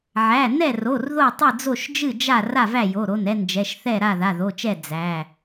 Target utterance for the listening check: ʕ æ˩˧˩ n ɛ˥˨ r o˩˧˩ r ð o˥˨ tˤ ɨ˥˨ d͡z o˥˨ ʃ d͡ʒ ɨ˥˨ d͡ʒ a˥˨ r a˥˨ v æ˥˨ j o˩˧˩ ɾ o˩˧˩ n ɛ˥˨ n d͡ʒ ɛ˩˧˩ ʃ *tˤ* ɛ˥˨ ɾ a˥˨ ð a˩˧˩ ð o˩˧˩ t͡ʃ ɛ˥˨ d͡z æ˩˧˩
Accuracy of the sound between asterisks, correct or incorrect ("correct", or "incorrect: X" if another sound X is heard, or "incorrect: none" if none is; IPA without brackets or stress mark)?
incorrect: θ